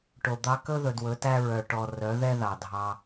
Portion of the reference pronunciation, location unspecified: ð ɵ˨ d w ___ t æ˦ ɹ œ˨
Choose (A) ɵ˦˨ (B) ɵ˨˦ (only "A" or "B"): B